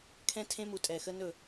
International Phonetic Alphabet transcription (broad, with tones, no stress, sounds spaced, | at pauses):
kʰ ɛ̃˦ tʰ ẽ˦ m u˨ tʼ ɛ˨ x ə˦ n ɵ˦˨